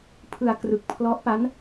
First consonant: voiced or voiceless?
voiceless